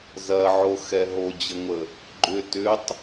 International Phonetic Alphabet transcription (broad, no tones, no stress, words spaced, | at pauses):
zɐʕo xɛɦod͡ʑəŋʷə | ɡ͡ǃʏ tʏtˤ